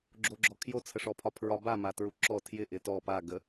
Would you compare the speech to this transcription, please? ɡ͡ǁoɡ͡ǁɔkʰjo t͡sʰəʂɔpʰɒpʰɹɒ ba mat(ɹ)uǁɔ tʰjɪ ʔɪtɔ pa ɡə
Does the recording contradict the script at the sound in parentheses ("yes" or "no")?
no